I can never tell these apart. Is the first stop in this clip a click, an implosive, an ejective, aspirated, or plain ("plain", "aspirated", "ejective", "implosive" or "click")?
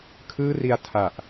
aspirated